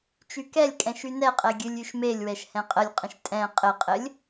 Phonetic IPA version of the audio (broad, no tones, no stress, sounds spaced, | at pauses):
t͡ʃ y k ɛ lʲ kʼ ɛ̃ ʃ y n ɛ qʼ ɛ ɡʲ ɨ lʲ y ʃ m e lʲ w ɛ ʃ h ɛ̃ qʼ ə lʲ qʼ ə̃ ʃ tʼ ɛ̃ qʼ ɘ qʼ ɘ lʲ